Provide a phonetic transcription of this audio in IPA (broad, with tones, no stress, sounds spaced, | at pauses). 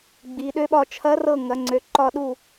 ɡ͡b i˩˧ ɗ ø˧˥ ɓ ɒ˦˨ t͡ʃʰ ɐ˧˥ r ɤ˦˨ ŋ ɐ˩˧ ŋ͡ǀ ø˩˧ ǃ ɒ˦˨ ɗ u˦˨